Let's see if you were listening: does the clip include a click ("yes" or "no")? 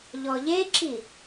yes